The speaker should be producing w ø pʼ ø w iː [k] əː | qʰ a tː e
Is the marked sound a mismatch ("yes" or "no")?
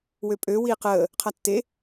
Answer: yes